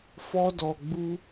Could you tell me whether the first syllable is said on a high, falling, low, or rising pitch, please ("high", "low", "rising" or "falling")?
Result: high